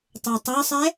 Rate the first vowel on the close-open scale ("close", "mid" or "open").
mid